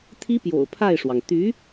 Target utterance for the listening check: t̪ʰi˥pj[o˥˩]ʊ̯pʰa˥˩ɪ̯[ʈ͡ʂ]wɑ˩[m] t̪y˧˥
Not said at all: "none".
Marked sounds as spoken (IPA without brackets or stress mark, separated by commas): o̰˨˩, ʂ, ŋ